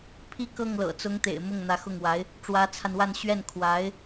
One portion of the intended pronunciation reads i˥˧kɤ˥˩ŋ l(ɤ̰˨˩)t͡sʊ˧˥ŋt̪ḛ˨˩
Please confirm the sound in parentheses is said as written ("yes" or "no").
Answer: yes